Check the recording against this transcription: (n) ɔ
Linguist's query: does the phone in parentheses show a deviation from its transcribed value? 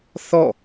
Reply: yes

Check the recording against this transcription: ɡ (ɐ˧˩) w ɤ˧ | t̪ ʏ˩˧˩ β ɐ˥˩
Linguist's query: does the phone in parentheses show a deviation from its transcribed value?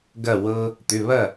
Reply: no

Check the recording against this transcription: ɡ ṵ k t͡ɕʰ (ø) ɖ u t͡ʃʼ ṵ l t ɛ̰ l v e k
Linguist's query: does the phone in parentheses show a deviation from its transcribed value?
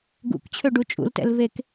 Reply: no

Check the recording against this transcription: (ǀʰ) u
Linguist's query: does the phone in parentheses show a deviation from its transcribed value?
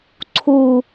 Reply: no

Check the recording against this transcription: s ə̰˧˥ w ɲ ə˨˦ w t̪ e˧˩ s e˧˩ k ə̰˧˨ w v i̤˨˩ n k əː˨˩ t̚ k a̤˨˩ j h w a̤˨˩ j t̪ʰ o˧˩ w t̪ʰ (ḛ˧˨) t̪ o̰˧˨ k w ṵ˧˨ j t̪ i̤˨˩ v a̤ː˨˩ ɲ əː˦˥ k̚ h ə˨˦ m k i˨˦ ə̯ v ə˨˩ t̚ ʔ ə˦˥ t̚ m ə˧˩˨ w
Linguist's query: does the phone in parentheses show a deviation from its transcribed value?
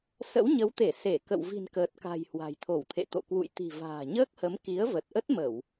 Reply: no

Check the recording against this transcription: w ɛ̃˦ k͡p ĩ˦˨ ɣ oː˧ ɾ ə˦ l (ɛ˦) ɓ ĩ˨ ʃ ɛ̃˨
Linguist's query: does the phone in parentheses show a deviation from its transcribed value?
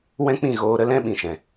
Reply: yes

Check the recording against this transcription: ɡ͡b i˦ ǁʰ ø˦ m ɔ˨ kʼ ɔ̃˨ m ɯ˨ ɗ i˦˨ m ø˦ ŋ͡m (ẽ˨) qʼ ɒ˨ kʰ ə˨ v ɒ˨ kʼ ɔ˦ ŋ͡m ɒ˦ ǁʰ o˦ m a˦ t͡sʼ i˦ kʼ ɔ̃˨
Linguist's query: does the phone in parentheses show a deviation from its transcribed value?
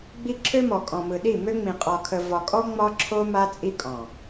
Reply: yes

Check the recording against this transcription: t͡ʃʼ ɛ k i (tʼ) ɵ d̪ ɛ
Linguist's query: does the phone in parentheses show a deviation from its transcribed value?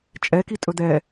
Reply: no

